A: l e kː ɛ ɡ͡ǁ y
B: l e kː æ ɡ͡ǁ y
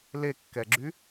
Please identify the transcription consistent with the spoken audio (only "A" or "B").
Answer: A